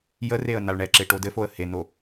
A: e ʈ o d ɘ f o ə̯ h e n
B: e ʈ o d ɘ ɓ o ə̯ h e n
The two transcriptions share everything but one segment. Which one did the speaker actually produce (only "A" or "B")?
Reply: A